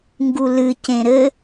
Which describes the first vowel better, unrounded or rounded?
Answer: rounded